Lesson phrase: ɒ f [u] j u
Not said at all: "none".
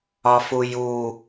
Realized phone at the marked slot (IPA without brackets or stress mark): u